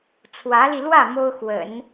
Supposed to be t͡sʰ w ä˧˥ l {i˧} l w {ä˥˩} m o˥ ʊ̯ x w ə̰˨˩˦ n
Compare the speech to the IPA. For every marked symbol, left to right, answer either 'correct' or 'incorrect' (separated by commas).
correct, correct